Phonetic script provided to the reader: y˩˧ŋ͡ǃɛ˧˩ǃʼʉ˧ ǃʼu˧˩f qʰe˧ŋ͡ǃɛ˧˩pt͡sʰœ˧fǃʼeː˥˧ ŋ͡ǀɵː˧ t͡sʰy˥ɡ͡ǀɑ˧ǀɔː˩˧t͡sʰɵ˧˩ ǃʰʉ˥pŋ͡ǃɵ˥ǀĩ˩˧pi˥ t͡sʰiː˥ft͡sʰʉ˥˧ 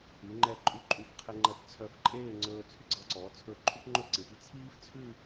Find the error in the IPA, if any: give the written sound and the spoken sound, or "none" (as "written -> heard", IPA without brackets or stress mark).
none